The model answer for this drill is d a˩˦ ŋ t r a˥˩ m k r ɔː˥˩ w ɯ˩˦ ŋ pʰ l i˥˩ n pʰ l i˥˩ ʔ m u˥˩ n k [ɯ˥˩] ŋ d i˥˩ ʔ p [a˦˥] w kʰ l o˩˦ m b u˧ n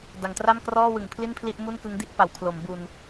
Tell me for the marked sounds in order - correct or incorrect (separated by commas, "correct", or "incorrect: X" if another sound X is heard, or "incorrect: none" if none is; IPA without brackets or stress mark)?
incorrect: ɯ˦˥, incorrect: a˩˦